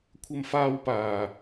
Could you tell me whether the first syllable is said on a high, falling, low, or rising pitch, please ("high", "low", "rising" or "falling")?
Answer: high